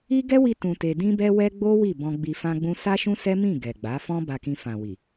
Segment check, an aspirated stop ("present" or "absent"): absent